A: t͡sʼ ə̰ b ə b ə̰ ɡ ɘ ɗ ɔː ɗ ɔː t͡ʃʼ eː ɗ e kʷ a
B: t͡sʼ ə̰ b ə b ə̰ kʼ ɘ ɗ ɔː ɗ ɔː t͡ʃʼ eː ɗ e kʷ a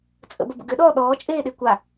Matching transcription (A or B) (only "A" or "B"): A